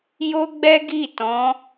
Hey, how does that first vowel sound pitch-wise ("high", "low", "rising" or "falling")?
high